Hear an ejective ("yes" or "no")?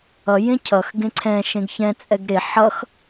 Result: yes